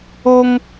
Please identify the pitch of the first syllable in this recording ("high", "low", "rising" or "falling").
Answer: high